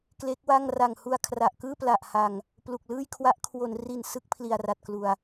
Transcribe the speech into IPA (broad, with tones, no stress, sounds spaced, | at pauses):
k l e˦˥ k̚ w a˥˩ ŋ r a˨˩ ŋ h u˧ a̯ kʰ r a˨˩ ʔ k ɯː˥˩ p l a˨˩ ʔ h a˨˩ ŋ | p l u˨˩ k̚ l ɯː˥˩ j kʰ w a˦˥ ʔ kʰ w o˩˦ n r i˨˩ n s ɯ˥˩ k̚ pʰ l i˨˩ a̯ r a˨˩ t̚ k l u˨˩ a̯